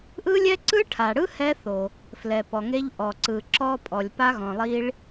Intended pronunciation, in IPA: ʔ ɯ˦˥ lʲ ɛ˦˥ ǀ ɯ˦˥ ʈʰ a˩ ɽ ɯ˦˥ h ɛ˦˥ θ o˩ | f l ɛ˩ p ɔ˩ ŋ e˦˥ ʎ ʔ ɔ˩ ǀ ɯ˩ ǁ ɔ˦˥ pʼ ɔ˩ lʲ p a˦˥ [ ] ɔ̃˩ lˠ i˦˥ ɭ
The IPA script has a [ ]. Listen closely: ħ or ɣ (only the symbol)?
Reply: ɣ